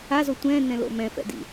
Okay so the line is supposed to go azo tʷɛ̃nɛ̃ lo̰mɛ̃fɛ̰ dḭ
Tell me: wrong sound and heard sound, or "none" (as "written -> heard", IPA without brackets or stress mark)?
none